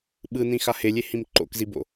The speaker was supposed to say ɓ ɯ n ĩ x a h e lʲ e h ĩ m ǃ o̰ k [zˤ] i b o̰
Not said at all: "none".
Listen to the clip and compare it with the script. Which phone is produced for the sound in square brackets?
z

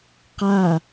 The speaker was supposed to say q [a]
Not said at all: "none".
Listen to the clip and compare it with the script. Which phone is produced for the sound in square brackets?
a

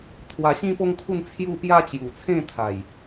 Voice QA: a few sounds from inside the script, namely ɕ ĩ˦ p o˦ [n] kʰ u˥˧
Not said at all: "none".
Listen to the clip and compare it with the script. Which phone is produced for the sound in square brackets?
ŋ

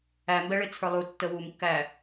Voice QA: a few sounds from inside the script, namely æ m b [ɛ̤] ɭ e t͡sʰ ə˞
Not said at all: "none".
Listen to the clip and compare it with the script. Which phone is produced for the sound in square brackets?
ɛ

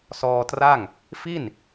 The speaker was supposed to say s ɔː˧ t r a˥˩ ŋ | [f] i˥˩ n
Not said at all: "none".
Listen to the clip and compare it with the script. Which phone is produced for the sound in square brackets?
f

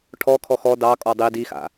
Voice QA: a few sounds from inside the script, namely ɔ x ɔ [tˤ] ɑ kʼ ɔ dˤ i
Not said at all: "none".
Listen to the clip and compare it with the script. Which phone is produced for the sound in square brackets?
d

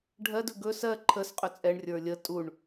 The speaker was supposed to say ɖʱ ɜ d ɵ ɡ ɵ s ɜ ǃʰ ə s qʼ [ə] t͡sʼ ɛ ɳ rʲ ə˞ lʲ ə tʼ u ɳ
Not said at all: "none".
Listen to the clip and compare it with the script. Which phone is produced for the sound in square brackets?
ɵ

